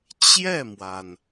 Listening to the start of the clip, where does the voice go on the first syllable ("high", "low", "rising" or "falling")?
falling